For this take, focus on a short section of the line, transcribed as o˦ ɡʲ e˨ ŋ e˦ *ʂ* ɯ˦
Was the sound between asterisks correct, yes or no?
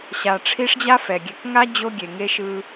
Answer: no